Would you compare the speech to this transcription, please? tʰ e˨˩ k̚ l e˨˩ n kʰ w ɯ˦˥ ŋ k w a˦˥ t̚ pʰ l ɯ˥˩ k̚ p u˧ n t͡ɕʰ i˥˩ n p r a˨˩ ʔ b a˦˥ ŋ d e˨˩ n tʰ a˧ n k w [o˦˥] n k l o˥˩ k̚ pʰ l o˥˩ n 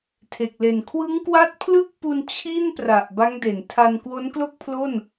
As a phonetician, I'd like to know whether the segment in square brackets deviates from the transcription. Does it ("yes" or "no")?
no